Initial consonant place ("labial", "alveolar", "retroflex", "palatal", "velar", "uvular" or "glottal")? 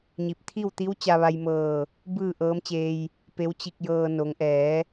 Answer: palatal